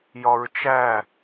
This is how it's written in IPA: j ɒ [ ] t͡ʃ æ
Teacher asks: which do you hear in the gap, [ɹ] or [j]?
ɹ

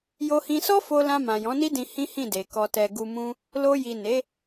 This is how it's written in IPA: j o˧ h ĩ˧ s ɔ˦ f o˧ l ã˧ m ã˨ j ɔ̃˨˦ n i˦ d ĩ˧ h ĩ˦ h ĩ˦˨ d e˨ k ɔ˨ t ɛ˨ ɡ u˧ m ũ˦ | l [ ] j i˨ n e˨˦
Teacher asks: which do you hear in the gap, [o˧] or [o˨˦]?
o˧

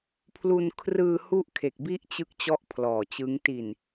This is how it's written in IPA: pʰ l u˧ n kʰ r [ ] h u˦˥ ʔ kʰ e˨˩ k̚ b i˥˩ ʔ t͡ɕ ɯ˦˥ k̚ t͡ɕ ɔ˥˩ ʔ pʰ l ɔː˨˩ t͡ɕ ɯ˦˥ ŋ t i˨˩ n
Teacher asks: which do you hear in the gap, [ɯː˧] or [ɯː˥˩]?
ɯː˧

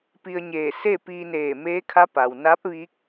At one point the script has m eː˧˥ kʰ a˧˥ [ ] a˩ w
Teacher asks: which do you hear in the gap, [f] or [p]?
p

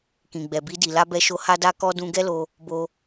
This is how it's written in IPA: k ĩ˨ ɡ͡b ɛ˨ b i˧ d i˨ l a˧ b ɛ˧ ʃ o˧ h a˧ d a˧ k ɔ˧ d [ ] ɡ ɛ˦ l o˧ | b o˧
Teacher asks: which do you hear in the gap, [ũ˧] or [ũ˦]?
ũ˧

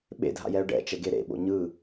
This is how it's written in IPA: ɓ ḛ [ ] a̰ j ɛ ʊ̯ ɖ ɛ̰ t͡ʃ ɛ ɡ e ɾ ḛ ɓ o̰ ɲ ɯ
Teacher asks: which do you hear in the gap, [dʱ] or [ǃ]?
dʱ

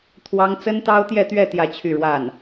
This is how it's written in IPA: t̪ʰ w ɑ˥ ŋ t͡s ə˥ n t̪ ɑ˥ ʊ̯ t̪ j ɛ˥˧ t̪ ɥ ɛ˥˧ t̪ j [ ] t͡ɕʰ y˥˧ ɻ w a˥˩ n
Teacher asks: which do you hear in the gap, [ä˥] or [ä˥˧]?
ä˥˧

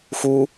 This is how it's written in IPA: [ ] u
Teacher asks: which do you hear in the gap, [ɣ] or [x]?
x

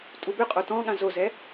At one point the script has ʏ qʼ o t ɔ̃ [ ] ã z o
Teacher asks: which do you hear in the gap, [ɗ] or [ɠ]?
ɠ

